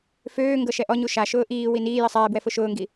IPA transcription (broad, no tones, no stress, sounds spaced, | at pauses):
f øː ŋ ɡ ɤ ʃ ɛ ʔ ɔ ɲ u ʃ a ʃ ʊː ʔ iː w i n iː j i sˤ ɛː b w ɛ f ʊ ʃ ʊː ŋ ɡ i